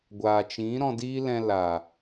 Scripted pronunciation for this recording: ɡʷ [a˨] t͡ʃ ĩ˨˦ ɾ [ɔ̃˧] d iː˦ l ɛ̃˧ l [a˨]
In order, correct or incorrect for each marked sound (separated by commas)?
incorrect, correct, correct